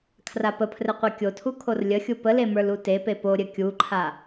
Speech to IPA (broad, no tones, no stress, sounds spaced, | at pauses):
kʰ r a p ə pʰ r ɘ qʷ e kʲ o tʰ u kʰ o r lʲ ə xʲ u p ə l e m ə˞ l u t e p e p o ɾʲ ɘ kʲ u ǃʰ a